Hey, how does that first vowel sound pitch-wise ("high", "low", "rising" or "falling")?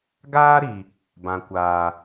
high